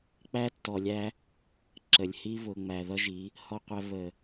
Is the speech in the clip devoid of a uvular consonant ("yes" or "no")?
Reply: no